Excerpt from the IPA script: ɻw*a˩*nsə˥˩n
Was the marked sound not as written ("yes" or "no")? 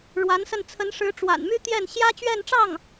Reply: yes